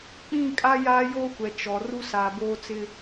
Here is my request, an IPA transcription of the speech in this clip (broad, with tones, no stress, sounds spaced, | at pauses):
k͡p ĩ˦˨ kʼ a˦ j aː˦ j oː˦ kʷ ɛ˨ t͡ʃ ɔ˨ r u˦ s aː˨ b oː˦ t͡s ɪ˦